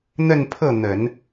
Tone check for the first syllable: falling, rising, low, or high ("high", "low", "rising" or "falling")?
falling